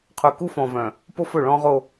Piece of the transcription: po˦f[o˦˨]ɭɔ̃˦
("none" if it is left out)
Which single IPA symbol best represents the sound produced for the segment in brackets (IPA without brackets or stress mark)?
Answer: ɵ˦˨